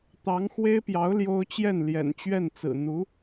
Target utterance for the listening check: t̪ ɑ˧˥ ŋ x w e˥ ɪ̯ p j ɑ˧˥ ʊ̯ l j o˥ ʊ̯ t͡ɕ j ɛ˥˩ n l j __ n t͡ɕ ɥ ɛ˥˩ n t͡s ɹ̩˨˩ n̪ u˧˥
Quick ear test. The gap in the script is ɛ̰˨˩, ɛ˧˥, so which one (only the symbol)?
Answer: ɛ̰˨˩